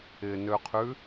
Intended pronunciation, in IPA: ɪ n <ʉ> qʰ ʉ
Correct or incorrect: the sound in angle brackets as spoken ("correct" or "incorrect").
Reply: incorrect